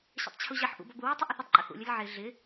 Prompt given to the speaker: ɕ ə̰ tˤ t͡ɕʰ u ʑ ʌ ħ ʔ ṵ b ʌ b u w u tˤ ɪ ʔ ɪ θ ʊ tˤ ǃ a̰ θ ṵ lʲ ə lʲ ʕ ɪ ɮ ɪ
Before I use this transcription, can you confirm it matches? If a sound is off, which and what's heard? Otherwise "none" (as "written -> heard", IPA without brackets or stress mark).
a̰ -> ə̰